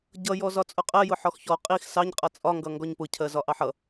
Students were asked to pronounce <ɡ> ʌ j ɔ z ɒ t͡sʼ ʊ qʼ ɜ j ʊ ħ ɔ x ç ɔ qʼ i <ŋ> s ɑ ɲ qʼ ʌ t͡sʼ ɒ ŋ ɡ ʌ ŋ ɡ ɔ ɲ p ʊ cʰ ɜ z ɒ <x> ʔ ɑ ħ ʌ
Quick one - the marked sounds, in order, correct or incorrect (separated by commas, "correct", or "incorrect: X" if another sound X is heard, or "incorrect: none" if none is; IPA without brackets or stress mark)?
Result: incorrect: ɟ, incorrect: x, incorrect: none